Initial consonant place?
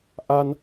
glottal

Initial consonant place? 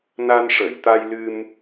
alveolar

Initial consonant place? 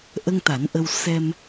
glottal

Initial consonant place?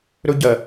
alveolar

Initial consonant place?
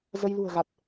alveolar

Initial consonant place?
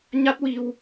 palatal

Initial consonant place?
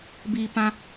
labial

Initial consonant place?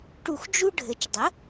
retroflex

